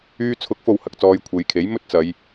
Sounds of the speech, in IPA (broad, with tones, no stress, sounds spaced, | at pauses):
yː˧ t͡sʰ ʊ˨˥ k̚ f o˨ w h ɐ˨ k̚ t͡s ɔː˧ j kʷʰ e˨˧ j kʰ e˨˥ j m ɵ˥ t̚ t͡s ɐ˨˧ j